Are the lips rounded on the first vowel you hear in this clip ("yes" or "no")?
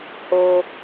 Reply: yes